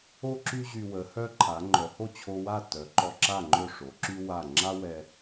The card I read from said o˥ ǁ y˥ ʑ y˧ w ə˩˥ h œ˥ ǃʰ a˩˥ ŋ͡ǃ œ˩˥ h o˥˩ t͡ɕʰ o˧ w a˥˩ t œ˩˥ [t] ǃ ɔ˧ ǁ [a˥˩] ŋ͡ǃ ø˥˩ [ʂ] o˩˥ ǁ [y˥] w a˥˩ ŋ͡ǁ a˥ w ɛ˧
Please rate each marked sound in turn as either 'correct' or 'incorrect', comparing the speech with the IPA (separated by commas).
incorrect, correct, correct, correct